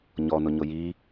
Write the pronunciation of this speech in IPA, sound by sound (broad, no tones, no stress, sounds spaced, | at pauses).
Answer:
ɲ ɔ n ʊ ɲ ʊ j i